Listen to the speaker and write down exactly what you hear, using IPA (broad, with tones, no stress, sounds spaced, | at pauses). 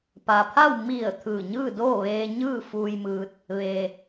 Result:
p a˩ pʰ a˥˨ w m i˧˩ ə̯ t̪ʰ ɯː˧˩ ɲ ɯː˥˨ d oː˥˨ ʋ eː˧ ɲ ɯː˥˨ f uː˧ j m ɯː˧ t̚ | ʋ e˩